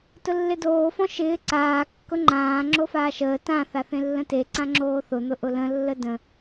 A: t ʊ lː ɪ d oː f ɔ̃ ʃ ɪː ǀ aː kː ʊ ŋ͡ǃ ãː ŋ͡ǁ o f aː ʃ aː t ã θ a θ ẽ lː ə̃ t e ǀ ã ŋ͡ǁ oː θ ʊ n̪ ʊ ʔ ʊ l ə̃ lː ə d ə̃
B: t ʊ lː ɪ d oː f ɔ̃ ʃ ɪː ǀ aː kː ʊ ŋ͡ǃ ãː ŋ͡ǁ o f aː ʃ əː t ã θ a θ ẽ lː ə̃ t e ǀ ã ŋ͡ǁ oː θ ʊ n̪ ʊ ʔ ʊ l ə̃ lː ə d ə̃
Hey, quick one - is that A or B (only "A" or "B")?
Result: B